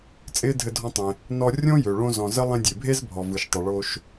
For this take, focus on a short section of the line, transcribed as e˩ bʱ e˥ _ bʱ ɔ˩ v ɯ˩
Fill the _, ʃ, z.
z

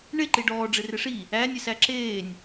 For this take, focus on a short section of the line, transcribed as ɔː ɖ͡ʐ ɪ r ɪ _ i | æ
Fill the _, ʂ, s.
ʂ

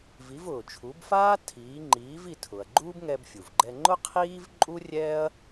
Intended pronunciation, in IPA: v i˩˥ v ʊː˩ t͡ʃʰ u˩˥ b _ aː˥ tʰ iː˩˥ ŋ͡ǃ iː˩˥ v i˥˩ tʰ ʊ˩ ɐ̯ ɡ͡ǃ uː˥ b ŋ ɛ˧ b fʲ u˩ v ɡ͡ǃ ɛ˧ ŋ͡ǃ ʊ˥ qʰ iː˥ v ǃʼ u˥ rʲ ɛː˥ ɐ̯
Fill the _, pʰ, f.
f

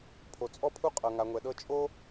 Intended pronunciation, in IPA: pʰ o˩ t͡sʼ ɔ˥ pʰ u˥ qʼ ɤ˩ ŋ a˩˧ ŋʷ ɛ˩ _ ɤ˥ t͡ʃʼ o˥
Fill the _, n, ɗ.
ɗ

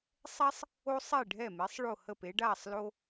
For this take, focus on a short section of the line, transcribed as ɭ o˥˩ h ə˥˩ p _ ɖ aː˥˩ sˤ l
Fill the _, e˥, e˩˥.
e˩˥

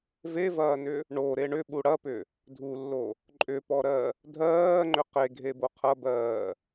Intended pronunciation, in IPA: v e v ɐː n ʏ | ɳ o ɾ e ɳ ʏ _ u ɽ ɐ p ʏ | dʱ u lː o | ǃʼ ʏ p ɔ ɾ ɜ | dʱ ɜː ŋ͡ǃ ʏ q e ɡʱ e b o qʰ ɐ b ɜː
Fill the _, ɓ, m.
ɓ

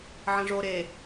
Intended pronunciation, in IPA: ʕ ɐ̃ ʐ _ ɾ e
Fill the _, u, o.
o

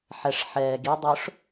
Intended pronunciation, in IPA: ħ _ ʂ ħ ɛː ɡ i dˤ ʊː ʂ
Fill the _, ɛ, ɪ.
ɛ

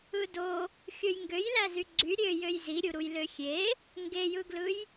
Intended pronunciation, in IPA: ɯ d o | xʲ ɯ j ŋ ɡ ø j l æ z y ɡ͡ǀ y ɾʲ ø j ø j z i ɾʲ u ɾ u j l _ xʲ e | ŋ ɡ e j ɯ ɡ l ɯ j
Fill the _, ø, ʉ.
ø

